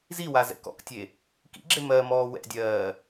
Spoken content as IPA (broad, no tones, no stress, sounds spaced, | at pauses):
z i w a z ɛ̰ k ɔ̰ k tʲ e | k ḭ ɡ͡ǁ e m ɜ m ɔː w ɛ̰ dʲ ɜː